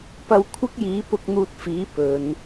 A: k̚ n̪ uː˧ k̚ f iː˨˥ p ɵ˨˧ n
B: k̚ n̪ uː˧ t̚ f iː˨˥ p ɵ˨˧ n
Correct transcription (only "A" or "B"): B